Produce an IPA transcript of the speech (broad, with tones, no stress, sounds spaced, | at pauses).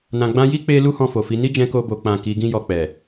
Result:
n ã˨ ɡ͡b ã˧ j i˦ k͡p e˦ l u˦ h ɔ̃˧ f o˨ f i˨˦ n i˦ d͡ʒ ɛ̃˧ k o˧ b o˨ k͡p ã˨ k i˨˦ ɡ ĩ˦ j ɔ˧ k͡p ɛ˨